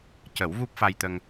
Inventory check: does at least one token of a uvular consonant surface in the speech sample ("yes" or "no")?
no